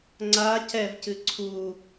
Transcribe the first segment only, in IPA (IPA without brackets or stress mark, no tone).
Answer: ŋ͡ǀ